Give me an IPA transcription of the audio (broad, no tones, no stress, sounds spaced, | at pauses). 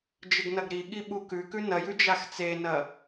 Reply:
d͡ʒ ɨ ɡ n ɐ ɡ ɾ i ɠ i ɓ u k ʉ k ʉ n ɐ j ʉ d͡ʒ a x t͡s e n ɐ